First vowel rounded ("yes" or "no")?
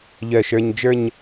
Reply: yes